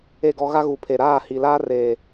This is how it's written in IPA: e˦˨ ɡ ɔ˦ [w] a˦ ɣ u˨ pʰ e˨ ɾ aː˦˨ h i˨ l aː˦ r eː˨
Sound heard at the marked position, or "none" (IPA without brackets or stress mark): ɣ